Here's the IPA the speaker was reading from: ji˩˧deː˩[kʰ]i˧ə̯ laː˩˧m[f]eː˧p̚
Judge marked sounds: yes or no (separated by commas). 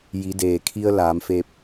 yes, yes